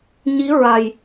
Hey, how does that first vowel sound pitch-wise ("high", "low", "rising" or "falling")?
rising